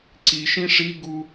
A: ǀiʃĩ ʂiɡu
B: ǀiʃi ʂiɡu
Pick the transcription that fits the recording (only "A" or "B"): A